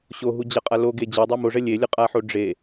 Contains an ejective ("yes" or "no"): yes